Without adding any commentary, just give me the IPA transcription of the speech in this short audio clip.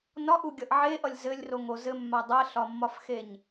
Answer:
nɒʔuɡʲʌʔ ʕeʔʌlʲ zɘlʲroŋo zɘmːa dˤɛɬɒmːɒfxeɲ

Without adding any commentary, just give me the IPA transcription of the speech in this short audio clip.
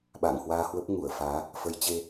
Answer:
ɓa̰ː˧˨ŋhwaː˧hwə˦˥p̚ ŋu˧˩ə̯faː˨˦ | fə˨˦jt͡ɕe˧

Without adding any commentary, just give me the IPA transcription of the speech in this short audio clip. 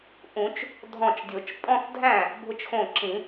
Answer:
ʔũ˨˩˦t͡ʃ | dʱɔ̃˧˩t͡ʃdʲo˨˩˦t͡ʃ pʼɔ̃˥˧θdʱæ̃˥˩ | bʱʊ˧t͡ʃxõ˧˩ǁĩ˨˩˦

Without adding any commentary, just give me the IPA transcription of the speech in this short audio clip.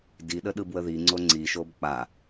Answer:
diɗəɗɯ bwəði ŋ͡ǀoŋ͡ǀiʃob k͡pa

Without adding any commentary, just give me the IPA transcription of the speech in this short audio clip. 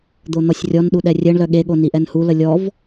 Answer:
d̪on̪ɔsʲrʲɔnɗu ɗɛrʲɛɳlœ ɠeɠo niʔɛnhulə lʲɔv

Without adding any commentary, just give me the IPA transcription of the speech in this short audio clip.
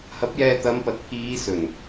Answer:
hɐ˨˥p̚jɛː˧ t̪ɐ˨˧mpɐ˨t̚pʰiː˨˧ sɵ˨˩n

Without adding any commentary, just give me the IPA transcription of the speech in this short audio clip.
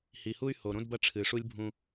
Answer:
hi˨hu˦y̯ho˨ ɾõ˦dbɐ˦ ʈ͡ʂʰɨ˨ʂu˦lʲbʱũ˦

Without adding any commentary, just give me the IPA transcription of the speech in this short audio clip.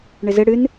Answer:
ɳɪzɪ ɽɨn

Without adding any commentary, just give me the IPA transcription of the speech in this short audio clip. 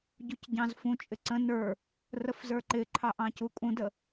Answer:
ɟucɟɑ̃zfũt͡ʃʼɪ ǀə̃ nə˞ | rəfzə˞ǃɪǃʰɑ ʔɑ̃cukʼũdə

